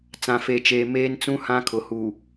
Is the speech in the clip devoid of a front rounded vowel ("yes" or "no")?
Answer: yes